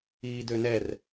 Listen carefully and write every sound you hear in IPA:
iː d ø n ɛ r

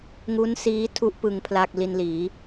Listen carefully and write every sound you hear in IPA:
ŋ u˦˥ n s iː˦˥ tʰ u˦˥ ʔ p ɯ˧ ŋ pʰ l a˥˩ k̚ l i˧ n l iː˩˦

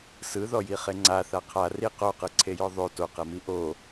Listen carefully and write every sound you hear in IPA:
s ɯ ð ɔ j i χ e ŋ͡ǀ a θ a qʰ a r i q o q ɯ ǀʰ e j ɔ ðˤ o t o q ɛ m i ʔ o

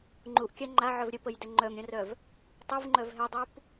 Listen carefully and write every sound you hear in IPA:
ŋ͡ǃ u ʔ kʲ a ŋ͡ǃ a ʕ œ v ɾʲ ə p ə j d ɛ ŋ͡ǃ œ m ɾʲ ə̃ r œ v | tˤ u v ŋ͡ǃ œ v ɦ ɛ dˤ u p

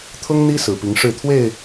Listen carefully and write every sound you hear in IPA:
t̪ʰ ʊ˦ ŋ n̪ i˦ s ɹ̩˨˩ p i˨˦ ŋ ʂ ɻ̩˥˨ t̪ʰ w e˥˨ ɪ̯

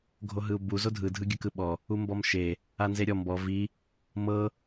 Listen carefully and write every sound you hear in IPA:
ɡʱ o ɦ ɯ u̯ b u z o dʱ ɯ dʱ ɯ ɡʲ ɯ k ɯ ɓ ɔ | u m b ɔ m ʃ e | a n z e ɾʲ ɔ m b ɔ v i | m ɤ

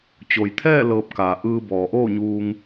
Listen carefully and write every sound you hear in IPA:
t͡ɕ o˩ j t̪ʰ ɛː˥˨ l ɤː˧ p̚ k aː˩ ʔ ɯː˧ b ɔː˩ ʔ oː˥˨ ɲ uː˧ ŋ

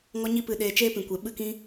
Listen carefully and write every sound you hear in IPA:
ŋ ɔ˦ ɲ i˦ p ɨ˧ ɗ eː˧ t͡ʃ eː˦ p ĩ˨ kʷ e˨ ɓ ɨ˦ k ĩ˦

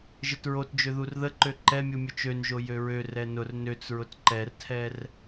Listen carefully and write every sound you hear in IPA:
ʒ ə t ɹ o t d͡ʒ ø ð u r ð ə ǃ ø ǃ ɛ mʲ u mʲ ʊ t͡ʃ ø n ʒ o j ø ɹ ø r ɛ n ʊ r n ø t͡s ɹ ʊ t ǃ ɛ r tʰ ɛ r

